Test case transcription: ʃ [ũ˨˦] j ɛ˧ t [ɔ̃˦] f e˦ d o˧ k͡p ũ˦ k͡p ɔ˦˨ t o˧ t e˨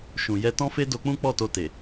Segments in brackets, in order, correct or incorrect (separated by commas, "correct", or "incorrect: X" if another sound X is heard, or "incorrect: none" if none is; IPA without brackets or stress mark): incorrect: ũ˨, correct